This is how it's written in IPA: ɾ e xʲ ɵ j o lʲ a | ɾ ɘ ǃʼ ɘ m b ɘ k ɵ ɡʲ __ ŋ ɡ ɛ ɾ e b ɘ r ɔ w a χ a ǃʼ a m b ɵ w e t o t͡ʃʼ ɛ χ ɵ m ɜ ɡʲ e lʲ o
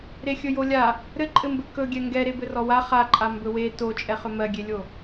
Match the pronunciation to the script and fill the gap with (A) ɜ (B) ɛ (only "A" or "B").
B